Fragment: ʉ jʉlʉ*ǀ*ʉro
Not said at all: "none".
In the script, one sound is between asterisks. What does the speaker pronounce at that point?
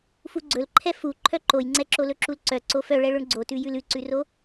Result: ǀ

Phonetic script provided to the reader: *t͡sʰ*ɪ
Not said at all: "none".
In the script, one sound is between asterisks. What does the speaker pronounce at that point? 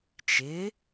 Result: t͡ʃ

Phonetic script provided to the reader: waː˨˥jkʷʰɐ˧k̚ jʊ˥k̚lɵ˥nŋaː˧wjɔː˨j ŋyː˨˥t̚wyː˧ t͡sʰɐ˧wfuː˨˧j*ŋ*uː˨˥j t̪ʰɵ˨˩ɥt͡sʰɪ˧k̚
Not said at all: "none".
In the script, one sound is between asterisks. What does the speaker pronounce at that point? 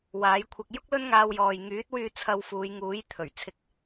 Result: ŋ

